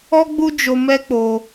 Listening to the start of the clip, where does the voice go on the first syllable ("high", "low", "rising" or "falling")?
high